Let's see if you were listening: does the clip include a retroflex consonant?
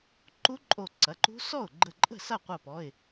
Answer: no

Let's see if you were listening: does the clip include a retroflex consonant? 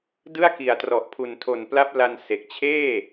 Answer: no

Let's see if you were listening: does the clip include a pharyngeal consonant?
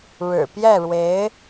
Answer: no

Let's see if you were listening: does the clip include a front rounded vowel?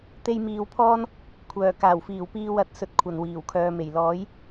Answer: yes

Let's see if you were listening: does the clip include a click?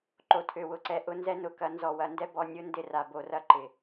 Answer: yes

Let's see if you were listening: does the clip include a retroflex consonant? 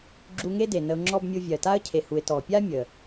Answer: no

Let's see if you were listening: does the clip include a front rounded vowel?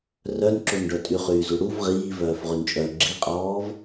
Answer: yes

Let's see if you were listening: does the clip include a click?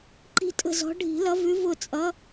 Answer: yes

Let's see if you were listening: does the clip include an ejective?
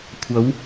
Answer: no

